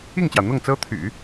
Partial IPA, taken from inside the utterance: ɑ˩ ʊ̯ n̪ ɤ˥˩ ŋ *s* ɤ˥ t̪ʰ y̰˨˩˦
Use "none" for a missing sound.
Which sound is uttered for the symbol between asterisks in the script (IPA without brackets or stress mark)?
t͡s